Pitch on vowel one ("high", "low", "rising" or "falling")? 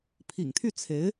low